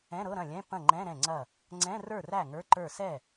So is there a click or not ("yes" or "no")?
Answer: yes